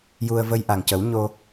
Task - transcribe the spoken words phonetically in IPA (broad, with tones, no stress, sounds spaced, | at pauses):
j u˧ ə̯ v ə˧ j ʔ a˨˩ ŋ c ə˨˩˦ w ɲ o˧